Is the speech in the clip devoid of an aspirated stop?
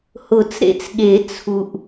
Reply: no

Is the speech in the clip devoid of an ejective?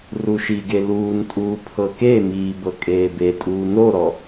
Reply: no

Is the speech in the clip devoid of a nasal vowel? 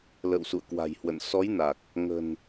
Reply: yes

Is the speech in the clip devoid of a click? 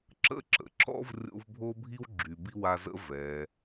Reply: no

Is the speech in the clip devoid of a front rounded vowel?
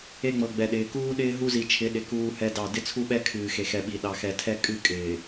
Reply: yes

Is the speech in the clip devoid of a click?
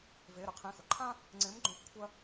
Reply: no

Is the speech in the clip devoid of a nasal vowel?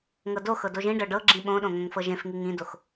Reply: no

